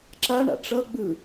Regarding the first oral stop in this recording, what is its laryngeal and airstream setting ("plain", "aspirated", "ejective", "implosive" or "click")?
click